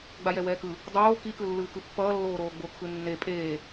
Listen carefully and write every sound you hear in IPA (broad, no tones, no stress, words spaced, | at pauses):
ɡ͡bajɛwɛːkɯ | dˤoː ki kɯlːɯːkɯpːʌː lːoːɾoːɡ͡bo kʰɯnːe pʼeː